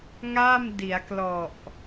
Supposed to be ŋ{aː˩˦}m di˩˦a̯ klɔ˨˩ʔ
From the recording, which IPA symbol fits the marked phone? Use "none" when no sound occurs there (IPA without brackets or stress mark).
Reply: aː˥˩